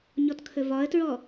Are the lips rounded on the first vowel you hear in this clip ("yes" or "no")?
yes